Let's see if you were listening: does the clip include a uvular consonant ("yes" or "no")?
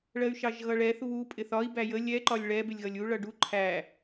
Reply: no